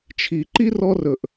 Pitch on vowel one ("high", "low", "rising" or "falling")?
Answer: low